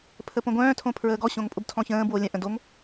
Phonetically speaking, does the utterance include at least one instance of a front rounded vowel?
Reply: yes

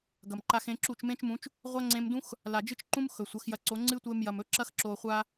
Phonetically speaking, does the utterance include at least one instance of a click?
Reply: yes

